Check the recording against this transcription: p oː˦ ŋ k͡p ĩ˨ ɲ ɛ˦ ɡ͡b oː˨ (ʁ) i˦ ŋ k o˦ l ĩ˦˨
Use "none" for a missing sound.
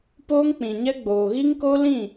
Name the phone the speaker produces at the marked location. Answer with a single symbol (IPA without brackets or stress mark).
ɣ